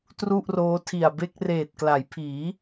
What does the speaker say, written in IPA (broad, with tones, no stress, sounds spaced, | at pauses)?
t r u˥˩ ʔ r oː˦˥ tʰ i˨˩ a̯ b e˥˩ k̚ r eː˨˩ t̚ k l a˩˦ j pʰ iː˩˦